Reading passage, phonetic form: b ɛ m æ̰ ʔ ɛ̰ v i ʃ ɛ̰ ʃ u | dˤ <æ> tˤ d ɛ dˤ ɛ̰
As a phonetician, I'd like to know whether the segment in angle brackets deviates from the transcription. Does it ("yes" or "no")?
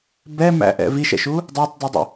no